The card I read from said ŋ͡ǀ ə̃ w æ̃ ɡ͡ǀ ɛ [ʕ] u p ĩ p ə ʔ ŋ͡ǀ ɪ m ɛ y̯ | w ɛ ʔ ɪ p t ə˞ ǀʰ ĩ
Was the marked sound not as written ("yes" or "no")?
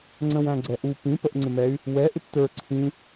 yes